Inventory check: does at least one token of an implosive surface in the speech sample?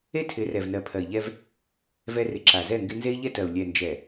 no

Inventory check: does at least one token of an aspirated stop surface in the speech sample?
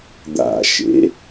no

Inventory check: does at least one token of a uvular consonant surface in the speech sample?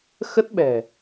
no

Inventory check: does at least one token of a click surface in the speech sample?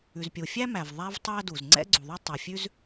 yes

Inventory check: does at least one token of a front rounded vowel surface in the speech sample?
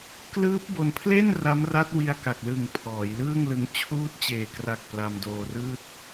no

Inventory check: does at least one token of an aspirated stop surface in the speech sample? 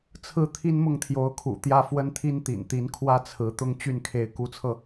yes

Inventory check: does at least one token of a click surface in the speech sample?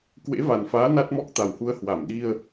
no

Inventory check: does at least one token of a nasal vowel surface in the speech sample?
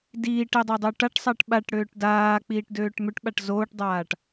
no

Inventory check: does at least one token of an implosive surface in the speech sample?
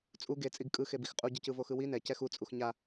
no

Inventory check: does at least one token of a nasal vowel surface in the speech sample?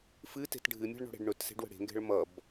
no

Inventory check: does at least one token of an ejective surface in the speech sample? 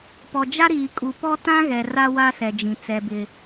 yes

